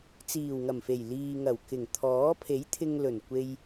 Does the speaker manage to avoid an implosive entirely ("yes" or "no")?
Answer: yes